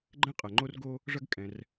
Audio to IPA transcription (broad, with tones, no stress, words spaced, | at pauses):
ɡ͡ǃɛ̃˥ qʼɐ˩ ŋ͡ǃo˥rɡo˥ | ʐɐ˥ɡ kʼɛ̃˩r